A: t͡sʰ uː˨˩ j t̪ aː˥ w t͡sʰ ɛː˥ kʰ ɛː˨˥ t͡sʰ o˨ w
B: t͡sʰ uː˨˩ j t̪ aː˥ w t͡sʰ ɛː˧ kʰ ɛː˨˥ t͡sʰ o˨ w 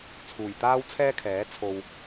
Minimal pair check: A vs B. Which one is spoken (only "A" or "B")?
A